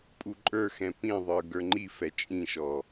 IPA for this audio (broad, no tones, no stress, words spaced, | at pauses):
pʼuǃʼə˞xɛ̃ pĩðˤə˞ ɡə˞ŋ͡ǃifɛ t͡ʃʼĩʃɔ